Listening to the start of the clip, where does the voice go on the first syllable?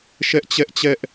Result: high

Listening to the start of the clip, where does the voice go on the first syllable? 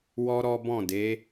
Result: high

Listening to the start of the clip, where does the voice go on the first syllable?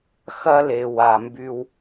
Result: high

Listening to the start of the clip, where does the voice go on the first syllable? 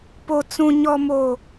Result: low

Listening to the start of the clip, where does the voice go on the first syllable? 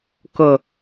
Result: low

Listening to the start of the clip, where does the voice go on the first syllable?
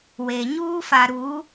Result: low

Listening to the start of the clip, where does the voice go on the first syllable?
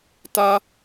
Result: high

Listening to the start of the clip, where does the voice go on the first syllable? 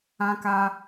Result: high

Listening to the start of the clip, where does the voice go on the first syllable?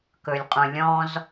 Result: low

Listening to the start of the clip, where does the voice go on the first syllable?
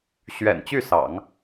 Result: low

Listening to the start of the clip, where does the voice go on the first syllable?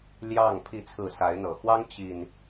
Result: falling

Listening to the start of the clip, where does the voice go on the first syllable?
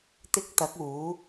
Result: high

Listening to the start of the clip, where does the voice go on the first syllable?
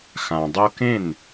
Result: low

